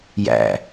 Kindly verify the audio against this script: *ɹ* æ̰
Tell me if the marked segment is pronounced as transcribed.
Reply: no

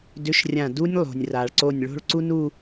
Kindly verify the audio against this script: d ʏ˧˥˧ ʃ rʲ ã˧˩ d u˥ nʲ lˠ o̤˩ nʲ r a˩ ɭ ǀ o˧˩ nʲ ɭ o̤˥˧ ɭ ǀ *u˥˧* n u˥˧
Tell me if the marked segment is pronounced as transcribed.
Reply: no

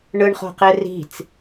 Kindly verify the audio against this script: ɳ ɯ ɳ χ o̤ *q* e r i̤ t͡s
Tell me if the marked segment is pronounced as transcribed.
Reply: yes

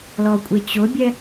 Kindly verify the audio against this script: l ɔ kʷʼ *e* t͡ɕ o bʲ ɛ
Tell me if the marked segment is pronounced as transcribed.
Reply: yes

